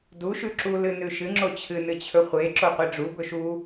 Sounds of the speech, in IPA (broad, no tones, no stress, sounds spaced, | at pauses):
d u ʃ ʉ ǁ u l ɨ n ʉ ʃ ɨ ŋ͡ǁ o t͡ɕʰ ɨ n ɨ t͡ɕʰ ɵ χʷ e ǁ o qʷ i ɖ͡ʐ u b ɵ ʃ u